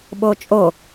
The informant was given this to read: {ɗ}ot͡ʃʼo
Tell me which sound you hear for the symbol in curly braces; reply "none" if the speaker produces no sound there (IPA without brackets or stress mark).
ɓ